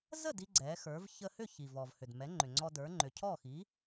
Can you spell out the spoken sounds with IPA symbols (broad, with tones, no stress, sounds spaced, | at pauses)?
z ə˥˩ d i˥ ɡ͡ǀ ɛ˩˥ x ə˞˩˥ v ç ə˧ h ʏ˥˩ ç i˩ v ɔ˩ v h ʏ˩ d m ɛ˩˥ ŋ͡ǃ ʏ˩ ŋ͡ǀ ɔ˧ d ə˞˩˥ ŋ͡ǃ ʏ˩ cʰ ɔ˥˩ x i˩˥